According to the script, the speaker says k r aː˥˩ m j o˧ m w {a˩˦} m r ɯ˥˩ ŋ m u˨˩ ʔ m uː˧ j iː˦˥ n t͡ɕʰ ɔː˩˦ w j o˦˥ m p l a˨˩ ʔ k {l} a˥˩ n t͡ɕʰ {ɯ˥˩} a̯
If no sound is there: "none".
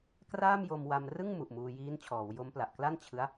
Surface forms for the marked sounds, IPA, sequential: a˧, l, ɯ˦˥

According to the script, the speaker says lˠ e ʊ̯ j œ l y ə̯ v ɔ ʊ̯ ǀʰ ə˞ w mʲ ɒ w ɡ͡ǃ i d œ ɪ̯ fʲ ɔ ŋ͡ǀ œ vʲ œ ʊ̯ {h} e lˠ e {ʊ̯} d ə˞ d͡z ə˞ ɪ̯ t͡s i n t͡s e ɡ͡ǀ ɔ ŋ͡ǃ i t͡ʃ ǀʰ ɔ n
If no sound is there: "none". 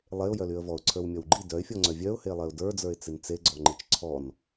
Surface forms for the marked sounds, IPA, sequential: h, ʊ̯

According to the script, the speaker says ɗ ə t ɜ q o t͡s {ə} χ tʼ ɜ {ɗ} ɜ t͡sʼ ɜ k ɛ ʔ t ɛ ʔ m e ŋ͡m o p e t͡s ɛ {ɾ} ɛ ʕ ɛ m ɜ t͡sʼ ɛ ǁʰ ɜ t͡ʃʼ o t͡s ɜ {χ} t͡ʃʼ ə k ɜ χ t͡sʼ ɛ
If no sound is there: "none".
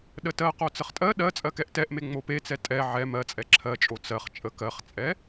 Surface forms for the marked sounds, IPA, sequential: ə, ɗ, tʼ, χ

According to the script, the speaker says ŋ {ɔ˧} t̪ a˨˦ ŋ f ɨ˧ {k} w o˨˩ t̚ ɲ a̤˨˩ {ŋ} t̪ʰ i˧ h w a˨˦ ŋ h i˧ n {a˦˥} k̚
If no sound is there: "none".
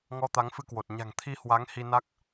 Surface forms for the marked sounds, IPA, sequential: ɔ˧, k, ŋ, a˦˥

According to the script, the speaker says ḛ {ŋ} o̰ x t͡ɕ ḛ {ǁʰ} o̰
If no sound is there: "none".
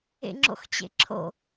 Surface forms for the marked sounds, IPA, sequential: ŋ͡ǁ, ǁʰ

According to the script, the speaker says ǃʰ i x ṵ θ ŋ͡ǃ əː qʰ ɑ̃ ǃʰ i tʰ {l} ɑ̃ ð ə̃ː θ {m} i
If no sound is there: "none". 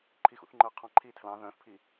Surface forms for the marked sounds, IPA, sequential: l, pʰ

